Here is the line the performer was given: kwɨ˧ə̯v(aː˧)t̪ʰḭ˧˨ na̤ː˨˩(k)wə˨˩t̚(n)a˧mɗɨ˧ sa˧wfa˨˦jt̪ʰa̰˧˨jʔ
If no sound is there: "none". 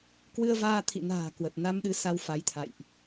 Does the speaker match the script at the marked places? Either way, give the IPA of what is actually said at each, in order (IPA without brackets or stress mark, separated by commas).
aː˧, k, n